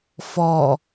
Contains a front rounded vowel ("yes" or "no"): no